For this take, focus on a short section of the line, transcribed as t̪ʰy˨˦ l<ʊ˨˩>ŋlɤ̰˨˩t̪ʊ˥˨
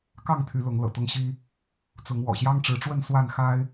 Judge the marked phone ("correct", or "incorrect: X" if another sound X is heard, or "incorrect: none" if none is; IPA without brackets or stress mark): incorrect: ʊ˨˦